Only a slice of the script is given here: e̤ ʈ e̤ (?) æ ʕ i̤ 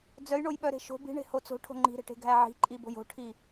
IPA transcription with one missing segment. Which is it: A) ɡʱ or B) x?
A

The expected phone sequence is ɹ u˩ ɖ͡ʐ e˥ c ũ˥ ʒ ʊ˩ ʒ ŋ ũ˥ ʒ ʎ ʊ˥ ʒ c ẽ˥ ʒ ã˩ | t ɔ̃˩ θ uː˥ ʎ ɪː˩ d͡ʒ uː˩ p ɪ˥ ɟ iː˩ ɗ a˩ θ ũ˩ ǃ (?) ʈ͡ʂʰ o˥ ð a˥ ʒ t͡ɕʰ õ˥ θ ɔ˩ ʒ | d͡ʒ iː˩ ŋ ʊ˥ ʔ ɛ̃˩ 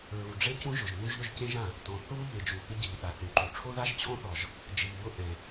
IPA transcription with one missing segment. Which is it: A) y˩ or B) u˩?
B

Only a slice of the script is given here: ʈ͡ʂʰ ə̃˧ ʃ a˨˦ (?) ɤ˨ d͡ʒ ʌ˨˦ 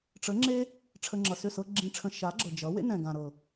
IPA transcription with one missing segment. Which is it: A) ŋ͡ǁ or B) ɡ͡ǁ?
B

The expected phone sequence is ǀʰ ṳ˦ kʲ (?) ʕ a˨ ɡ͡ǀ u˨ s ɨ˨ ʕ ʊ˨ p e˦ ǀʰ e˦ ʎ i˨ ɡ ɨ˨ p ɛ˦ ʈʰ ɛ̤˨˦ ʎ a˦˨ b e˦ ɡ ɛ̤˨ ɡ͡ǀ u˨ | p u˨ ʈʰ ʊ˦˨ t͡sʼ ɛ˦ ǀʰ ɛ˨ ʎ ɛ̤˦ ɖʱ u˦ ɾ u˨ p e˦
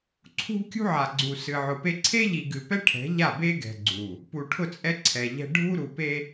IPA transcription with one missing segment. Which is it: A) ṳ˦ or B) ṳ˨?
A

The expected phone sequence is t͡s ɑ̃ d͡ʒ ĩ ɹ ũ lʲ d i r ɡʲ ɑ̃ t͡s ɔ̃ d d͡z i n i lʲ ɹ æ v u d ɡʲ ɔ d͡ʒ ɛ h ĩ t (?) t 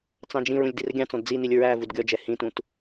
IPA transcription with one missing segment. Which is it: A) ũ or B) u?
A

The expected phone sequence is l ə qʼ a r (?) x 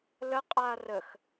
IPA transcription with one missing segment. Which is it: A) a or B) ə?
B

